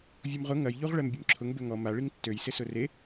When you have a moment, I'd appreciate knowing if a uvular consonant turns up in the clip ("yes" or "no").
yes